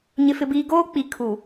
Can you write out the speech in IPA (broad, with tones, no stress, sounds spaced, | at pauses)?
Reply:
ɲ ɪ˨ f ɪ˨ b iː˨ ɡ oː˦ k͡p i˨ kʰ u˨